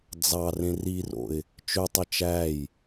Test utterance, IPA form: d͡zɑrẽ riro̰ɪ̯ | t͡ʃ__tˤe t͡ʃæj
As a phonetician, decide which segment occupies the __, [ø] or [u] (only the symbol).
ø